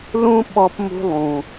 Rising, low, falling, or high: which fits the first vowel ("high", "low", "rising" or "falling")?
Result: high